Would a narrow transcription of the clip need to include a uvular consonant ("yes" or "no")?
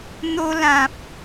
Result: no